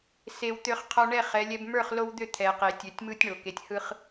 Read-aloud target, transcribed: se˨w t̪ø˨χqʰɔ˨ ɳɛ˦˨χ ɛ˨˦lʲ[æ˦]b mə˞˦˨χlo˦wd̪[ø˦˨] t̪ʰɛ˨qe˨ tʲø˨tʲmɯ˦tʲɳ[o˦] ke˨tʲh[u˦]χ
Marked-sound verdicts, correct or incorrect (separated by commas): incorrect, correct, incorrect, incorrect